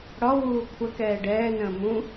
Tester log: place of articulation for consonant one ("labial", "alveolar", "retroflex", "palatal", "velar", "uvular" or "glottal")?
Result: retroflex